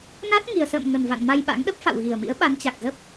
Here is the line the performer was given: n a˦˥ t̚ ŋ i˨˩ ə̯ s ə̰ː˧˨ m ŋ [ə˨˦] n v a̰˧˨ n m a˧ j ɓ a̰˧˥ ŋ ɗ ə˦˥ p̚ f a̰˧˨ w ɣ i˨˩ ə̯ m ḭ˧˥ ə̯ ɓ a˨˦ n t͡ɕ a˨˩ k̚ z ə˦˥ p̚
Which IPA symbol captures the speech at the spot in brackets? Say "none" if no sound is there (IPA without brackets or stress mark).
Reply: ə˨˩